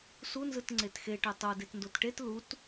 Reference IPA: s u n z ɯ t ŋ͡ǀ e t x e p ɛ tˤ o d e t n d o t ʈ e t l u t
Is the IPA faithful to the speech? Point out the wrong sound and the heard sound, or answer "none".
p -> ʈ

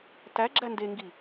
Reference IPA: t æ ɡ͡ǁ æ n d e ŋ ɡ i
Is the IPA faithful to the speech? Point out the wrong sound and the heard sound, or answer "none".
none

